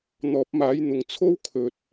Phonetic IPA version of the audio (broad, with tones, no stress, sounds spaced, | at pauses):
n̪ ɔː˨˥ p̚ m aː˨˥ j n̪ ʊ˨ ŋ t͡sʰ o˥ w kʰ ɵ˨ t̚